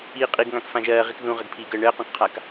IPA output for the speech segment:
iːqʼiɡŋãk fãʒɜːʁik ðũʁəɡpʰiːɡəː ɳəːqũkqʰak

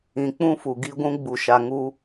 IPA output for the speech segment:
ĩ˨ k͡pũ˦fu˨ɡi˦ɡʷũ˦ ɡ͡bu˨ʃa˨ ŋu˦

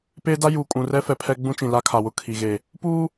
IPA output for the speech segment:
peː˦da˦ juː˨kʼũ˨rɛ˦ fɛ˨pʰɛ˦ɡ͡bũ˦t͡ʃĩ˨ la˦kʰa˨wʊ˦˨ kʰi˨ɣe˨ | puː˦

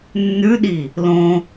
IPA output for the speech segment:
nːʉɗi | lõ

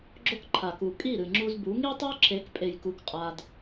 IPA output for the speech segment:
ɡ͡ǁo˦kǃʰa˨ku˨ kʼi˦˨ɾɨ˨ŋ͡ǁu˧zbu˨˦ ŋi˦tˤo˦ǁʰe˨˦kpʼe˨j ku˧kqʼa˧d

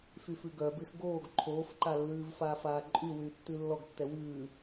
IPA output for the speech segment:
fyfʉɡœbɪːx ɡoːɡ ǃʰoːfǃalːʉːv faːfaːǃʼywyː tːʉlːɔɡtːɛ wʉː

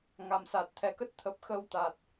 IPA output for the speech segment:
ŋa˨˩msa˨˩t̚t̪ʰɛ˨˩kə˦˥t̚ t̪ʰə˨˩p̚xə˧w t̪a˨˩t̚

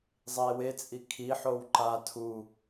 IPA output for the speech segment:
zˤie̯wet͡sʼi kʰiħow ǃa tʰu

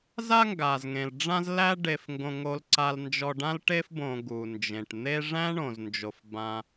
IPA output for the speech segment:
za˦ŋɡa˩zŋẽ˩l ɖ͡ʐã˦z læ˦ ɖe˨fŋɡõ˨ ŋo˨lǀa˨lnd͡ʒɔ˨ ɖã˦lʈe˦fbõ˨ ɡu˩ nd͡ʒẽ˩ʈ n̪e˦ʐæ̃˥ɳõ˩znd͡ʒo˩f bã˨

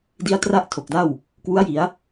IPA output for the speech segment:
di˦˥a̯tra˥˩ʔ tʰo˨˩k̚da˥˩w | kwu˦˥a̯ji˩˦a̯

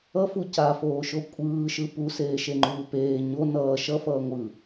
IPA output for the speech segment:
ʌfu cafoːʃo kʷʼɯːʃɯ puseːʃeŋ͡ǃuː peː ɲo nʌː ʃʌfʌː ŋʷɯ

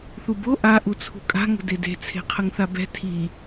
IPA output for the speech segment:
θubo ʔa ʔut͡sʰṳkʼa̤ ŋə̤dede̤ t͡sʰe̤qʰəŋθabɛ̤ tʰi

